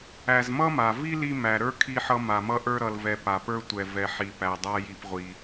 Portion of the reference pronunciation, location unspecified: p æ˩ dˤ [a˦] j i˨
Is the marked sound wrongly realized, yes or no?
no